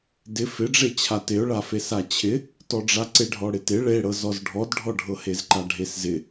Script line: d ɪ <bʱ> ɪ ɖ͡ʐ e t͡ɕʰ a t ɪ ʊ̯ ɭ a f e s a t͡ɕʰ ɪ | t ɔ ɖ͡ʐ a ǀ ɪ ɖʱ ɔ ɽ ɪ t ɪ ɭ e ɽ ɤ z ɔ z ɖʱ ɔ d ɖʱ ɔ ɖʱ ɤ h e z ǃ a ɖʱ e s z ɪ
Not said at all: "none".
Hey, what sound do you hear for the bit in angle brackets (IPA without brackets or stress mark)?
f